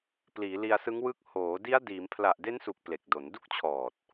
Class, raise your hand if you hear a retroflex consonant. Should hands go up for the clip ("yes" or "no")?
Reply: no